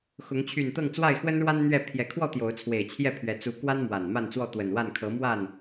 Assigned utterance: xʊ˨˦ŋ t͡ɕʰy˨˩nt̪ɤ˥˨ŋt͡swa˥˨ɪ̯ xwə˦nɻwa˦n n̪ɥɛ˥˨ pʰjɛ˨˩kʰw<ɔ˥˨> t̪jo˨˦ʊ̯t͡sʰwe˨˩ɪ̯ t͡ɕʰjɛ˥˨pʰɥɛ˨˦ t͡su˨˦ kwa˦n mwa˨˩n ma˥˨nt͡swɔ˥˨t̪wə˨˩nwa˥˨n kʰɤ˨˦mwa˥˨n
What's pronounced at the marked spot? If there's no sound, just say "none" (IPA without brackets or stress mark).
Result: ɔ˥˨